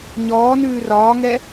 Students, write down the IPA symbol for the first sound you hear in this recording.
ɲ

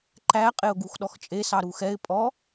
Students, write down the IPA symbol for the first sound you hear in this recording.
ǃ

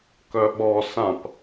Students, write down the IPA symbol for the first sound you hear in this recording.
k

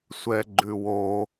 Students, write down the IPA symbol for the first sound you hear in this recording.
sʷ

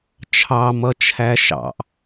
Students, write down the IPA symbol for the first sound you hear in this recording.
t͡ʃʰ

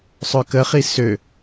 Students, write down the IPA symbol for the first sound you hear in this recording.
sˤ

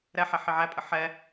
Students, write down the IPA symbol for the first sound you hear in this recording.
ɾ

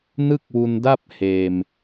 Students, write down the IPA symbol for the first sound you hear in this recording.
n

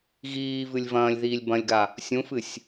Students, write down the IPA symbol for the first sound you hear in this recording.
ɣ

